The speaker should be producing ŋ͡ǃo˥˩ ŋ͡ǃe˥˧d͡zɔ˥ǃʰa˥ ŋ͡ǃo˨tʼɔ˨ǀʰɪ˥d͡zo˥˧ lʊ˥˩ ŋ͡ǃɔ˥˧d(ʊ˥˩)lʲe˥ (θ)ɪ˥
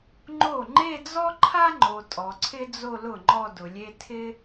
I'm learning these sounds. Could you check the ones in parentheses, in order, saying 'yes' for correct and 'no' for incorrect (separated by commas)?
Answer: no, no